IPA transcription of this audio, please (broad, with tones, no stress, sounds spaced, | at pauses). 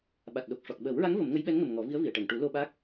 ɓ a˨˩ t̚ ɗ o˨˩ k̚ ʂ ɔ˨˩ k̚ ɓ əː˨˩˦ w ɹ a˧˥ ŋ v ə˨˩˦ m ŋ ə˧˥ j ɓ ɛ˧˥ n ŋ ə˨˩ m ŋ ɔ˨˩˦ v i˧˥ ə̯ v i˨˩˨ ə̯ ʈ ɛ˨˩˨ ŋ ʈ u˨˩˦ l o˧ ɓ a˦˥ k̚